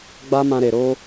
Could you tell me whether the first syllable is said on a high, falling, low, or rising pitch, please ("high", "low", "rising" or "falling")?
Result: high